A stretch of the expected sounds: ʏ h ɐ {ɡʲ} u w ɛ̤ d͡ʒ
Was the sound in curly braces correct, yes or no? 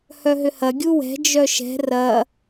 yes